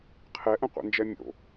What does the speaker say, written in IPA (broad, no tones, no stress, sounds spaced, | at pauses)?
qʰ ɛ ʔ ə̃ qʷ ɛ̰ n d͡ʒ ɛ mʲ o̰